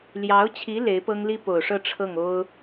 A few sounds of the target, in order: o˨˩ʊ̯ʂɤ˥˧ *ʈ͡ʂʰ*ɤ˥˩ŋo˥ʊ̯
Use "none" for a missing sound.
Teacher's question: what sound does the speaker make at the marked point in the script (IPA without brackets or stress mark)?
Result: ʈ͡ʂʰ